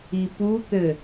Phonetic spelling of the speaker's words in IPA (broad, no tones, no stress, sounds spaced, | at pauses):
i p u t̪ ɘ